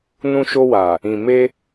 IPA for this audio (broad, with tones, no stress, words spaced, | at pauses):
nũ˧ʃo˧wa˨ | ĩ˨me˧